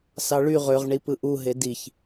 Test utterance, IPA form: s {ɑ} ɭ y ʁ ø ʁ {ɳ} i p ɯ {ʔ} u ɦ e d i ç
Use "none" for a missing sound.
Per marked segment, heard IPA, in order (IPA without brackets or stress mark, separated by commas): ɑ, ɳ, ʔ